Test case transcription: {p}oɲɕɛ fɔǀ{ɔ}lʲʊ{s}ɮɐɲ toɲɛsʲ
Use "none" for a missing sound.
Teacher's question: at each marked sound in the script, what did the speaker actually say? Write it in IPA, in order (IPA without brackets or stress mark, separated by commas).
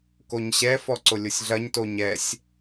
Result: k, ʊ, sʲ